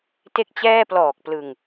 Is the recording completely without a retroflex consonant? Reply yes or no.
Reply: yes